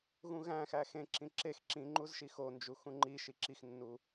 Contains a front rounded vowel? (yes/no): no